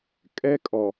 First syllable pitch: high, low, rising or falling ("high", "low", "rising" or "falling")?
high